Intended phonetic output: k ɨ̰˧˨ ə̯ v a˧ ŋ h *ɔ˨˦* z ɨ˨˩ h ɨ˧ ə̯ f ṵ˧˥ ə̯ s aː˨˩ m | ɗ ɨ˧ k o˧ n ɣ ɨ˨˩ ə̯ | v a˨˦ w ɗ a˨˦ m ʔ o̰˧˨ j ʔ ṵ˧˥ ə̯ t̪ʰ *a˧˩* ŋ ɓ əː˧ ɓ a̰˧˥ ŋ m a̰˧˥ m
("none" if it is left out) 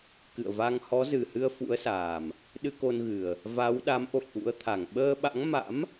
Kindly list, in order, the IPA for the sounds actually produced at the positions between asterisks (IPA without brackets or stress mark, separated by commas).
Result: ɔ˨˦, a˧˩